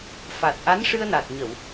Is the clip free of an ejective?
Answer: yes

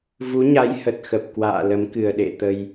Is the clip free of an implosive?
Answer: no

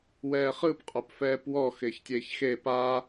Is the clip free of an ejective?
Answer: no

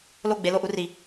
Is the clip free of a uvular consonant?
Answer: yes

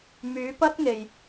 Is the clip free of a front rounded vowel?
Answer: no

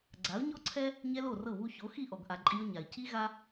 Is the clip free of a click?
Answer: no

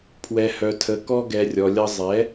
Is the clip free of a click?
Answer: yes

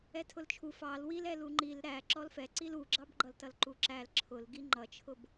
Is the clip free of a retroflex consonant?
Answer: yes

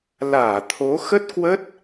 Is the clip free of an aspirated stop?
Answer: no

